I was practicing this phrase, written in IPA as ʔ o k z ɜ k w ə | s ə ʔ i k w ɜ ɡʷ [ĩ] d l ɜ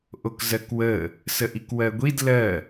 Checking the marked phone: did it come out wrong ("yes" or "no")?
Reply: yes